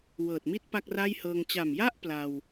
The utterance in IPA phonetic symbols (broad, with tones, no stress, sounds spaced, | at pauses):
w ɤː˨˩ t̚ m i˥˩ t̚ p a˥˩ k̚ r a˥˩ j h ɤː˧ ŋ t͡ɕ a˨˩ m j a˥˩ ʔ p l a˧ w